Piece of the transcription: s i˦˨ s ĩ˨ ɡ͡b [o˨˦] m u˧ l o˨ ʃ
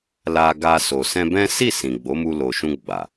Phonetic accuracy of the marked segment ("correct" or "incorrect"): correct